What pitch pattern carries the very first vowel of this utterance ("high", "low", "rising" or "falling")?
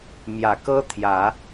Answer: low